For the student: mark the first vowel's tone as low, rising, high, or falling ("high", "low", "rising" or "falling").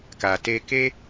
low